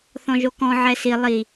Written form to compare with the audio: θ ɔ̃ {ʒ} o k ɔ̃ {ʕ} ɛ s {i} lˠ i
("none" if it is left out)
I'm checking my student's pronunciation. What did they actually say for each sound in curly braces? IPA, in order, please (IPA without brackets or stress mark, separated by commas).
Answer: ʒ, ʕ, i